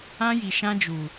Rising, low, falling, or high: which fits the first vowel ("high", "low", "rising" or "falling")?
high